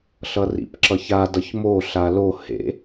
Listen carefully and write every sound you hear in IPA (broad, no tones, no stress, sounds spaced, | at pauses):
ɬ ʌ r ḭ p ǁ ʌ ç a d ʌ ç m o ɬ a l o h ḛ